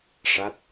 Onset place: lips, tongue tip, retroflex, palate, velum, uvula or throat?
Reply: retroflex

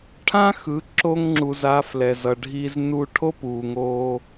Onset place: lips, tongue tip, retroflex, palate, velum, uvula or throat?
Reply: retroflex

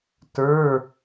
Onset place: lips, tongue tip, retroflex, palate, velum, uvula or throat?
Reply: tongue tip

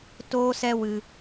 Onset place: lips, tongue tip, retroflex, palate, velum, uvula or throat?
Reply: tongue tip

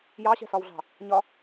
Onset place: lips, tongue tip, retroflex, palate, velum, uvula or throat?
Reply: palate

